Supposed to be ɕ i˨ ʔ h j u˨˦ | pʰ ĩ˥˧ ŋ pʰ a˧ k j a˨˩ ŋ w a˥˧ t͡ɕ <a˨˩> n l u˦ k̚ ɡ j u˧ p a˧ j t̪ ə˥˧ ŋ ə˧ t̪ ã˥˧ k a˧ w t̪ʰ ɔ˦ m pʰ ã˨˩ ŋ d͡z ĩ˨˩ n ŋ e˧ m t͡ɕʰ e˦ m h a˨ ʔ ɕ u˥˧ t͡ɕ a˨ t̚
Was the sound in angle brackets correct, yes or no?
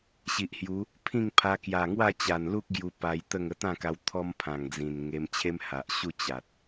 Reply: yes